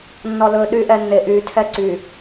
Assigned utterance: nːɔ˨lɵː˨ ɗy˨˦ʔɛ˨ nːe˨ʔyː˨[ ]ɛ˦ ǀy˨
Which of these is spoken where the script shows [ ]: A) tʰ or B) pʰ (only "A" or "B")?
A